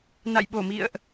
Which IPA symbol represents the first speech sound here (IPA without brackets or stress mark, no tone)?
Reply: n